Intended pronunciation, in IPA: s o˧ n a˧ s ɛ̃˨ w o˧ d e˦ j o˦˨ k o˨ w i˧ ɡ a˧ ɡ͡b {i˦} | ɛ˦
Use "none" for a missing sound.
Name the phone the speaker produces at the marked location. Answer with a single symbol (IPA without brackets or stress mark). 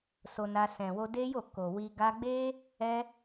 e˦